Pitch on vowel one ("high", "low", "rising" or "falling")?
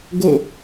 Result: falling